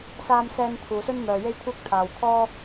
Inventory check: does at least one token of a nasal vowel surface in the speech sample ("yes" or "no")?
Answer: no